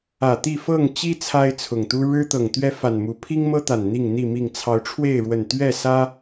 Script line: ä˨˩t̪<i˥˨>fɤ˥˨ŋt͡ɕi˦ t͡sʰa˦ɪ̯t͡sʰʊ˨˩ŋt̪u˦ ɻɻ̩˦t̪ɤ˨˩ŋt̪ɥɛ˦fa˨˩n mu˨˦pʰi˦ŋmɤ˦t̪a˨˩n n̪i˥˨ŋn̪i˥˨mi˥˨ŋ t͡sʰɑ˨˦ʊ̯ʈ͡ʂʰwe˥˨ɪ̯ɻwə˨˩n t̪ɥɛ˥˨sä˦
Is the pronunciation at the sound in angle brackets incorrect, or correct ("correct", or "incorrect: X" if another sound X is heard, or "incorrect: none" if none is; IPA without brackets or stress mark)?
correct